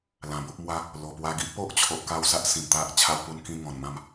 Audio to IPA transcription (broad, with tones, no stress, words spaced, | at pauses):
lã˨˩bo˦p̚mwa˦ | lo˨˩pwa˧ ɡi˦ʔpo˦ʔt͡ɕʰo˨ʔ ka˥˧wsa˦ʔ sĩ˨˩mt̪a˦ʔ t͡ɕʰa˧wpu˧nkĩ˧ ŋɔ̃˨˩nmã˥˧m